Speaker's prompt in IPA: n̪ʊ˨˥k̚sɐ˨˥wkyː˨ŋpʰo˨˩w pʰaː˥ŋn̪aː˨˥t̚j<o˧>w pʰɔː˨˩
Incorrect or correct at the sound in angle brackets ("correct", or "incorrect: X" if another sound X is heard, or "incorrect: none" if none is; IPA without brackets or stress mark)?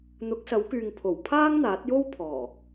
incorrect: o˥